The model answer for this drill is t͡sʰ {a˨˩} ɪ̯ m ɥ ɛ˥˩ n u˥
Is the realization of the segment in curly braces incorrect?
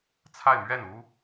yes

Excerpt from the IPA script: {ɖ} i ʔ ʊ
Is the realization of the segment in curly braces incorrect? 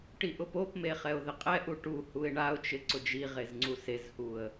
yes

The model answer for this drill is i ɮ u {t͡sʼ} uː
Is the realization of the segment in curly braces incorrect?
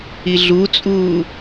no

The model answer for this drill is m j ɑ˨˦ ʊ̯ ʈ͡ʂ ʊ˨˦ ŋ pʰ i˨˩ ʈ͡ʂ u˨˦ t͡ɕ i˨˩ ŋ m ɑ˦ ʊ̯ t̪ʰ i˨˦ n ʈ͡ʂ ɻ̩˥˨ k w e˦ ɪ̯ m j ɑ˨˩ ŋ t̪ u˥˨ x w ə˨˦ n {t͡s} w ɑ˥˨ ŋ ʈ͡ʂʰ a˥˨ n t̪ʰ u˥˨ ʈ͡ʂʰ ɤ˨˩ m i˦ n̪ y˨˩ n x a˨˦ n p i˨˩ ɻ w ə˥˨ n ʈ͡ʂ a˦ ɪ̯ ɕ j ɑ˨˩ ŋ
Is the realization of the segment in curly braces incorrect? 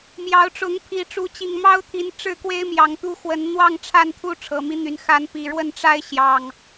yes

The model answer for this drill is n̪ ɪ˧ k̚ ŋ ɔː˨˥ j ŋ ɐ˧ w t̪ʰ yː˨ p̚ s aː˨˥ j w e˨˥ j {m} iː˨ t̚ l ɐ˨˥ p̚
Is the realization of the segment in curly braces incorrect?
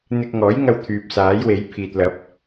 yes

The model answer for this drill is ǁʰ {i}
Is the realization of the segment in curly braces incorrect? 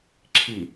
no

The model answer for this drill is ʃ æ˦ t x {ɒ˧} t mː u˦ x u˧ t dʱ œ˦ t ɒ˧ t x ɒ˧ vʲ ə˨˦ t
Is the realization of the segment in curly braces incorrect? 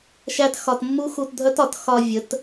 no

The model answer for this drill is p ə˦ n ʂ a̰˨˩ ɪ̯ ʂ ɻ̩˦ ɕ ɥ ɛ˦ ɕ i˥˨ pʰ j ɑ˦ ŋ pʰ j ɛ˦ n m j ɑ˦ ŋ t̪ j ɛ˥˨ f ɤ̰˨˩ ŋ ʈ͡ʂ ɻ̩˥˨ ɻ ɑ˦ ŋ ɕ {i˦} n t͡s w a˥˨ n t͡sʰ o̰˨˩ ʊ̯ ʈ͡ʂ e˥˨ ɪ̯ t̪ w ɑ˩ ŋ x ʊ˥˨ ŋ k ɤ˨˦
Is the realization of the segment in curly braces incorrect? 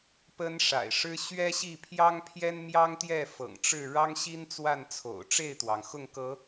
no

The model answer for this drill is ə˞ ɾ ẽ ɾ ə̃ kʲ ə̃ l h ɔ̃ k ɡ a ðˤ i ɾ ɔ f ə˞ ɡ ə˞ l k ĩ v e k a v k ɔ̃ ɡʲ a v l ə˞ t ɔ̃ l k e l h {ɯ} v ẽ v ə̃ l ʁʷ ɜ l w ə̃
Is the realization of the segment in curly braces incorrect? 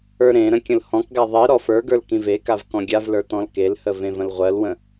yes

